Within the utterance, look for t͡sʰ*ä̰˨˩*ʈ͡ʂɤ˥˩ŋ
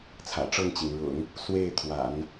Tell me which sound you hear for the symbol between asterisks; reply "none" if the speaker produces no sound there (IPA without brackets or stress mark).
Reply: ä̰˨˩